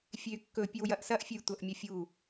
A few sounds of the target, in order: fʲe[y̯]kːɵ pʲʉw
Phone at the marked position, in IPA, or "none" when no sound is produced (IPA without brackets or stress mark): y̯